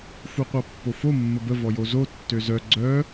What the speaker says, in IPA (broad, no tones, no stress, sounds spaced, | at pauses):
f u qʷ a pː o f o mː ə b ə v ɔ j o z o tː ø z œ ɡ͡ǀ œ